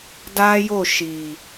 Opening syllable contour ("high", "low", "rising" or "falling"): high